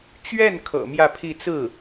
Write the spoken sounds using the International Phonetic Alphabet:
t͡ɕ ɥ ɛ˥˩ n kʰ ɤ̰˨˩ m j ä˥˧ pʰ i˥˧ t͡s ɹ̩˥˩

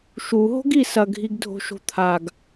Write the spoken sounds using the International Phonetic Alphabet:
ʃ u ɦ o̤ ɡ i s ɐ ɡʱ i ɡ dʱ o̤ ʃ o̤ t̪ʰ a ɡ

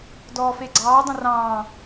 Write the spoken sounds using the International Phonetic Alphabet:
d ɔː f e ɡ͡ǀ ɑː dˤ ə̃ r ɑ̃ː

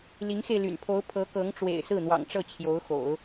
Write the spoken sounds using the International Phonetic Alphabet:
l i˧˥ ŋ x e˧ ɪ̯ l y̰˨˩ n pʰ o˧˥ ʊ̯ pʰ ɤ˧˥ k ɤ˧˥ ŋ ʈ͡ʂ w ḛ˨˩ ɪ̯ s ɹ̩˥˩ n̪ w ɑ̰˨˩ ŋ ʈ͡ʂ ɤ˥˩ t͡ɕʰ j o˧˥ ʊ̯ x o̰˨˩˦ ʊ̯

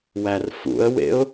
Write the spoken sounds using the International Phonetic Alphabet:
w æ r f ṵ ə̯ w ḛ ʊ̯

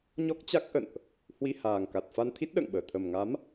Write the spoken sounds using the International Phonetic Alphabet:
ɲ ɔ˦˥ k̚ t͡ɕ a˦˥ k̚ ʔ ə̰˧˨ n ʔ | h w i˧ h aː˨˩ ŋ k a˨˩ t̚ f a˧ n t̪ʰ i˦˥ t̚ ɗ ə̰ː˧˨ ŋ ɓ əː˧˩ t̪ʰ ə˨˩ m ŋ a˨˦ m

